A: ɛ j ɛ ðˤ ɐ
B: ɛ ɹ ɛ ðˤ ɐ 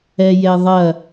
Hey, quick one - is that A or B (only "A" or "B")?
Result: A